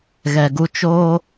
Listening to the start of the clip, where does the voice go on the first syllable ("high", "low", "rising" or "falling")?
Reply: low